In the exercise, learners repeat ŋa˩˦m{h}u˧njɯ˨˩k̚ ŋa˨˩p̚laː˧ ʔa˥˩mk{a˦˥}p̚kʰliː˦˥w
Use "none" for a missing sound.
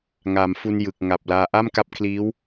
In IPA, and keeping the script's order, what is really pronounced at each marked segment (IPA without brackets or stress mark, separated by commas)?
f, a˦˥